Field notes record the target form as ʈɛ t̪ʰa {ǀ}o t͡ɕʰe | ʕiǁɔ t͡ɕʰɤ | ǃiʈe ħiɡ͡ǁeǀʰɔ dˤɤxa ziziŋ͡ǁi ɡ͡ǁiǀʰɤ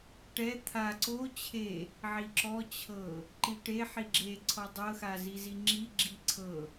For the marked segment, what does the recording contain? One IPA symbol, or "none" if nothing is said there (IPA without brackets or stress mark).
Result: ǀ